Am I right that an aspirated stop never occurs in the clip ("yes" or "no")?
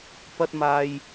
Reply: yes